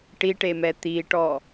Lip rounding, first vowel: unrounded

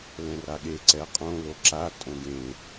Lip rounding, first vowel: unrounded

